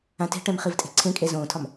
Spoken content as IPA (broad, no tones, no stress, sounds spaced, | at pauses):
ã t e̤ ʈ ɛ̃ m χ i v tʼ e̤ ǀʰ ẽ kʼ e z õː tʰ ɒ m